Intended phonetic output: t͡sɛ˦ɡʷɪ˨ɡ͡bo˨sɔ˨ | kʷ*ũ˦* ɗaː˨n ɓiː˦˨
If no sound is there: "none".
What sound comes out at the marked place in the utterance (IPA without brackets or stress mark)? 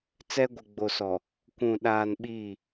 ũ˨